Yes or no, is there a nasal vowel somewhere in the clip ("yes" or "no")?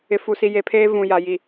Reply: yes